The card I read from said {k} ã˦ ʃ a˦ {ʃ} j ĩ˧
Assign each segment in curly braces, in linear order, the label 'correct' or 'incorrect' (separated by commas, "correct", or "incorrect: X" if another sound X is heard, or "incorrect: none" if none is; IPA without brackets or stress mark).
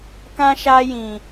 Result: correct, incorrect: none